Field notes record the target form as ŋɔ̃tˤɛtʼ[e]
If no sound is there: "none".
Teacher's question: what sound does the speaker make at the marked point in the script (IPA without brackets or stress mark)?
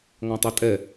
ɛ